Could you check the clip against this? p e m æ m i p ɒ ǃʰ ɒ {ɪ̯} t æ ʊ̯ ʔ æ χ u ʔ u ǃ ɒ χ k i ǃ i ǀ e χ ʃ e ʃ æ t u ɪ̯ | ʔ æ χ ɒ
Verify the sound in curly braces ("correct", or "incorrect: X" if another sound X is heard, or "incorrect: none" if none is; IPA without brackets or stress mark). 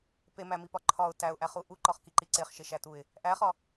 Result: incorrect: ʊ̯